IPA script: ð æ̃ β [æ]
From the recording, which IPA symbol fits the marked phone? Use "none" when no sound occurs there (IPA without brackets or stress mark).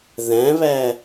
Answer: æ